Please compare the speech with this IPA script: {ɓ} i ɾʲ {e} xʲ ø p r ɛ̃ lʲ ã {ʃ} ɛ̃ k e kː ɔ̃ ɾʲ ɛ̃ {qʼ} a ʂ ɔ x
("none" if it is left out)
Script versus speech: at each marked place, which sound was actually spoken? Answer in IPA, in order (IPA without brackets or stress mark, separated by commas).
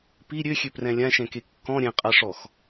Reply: p, ø, ʃ, qʼ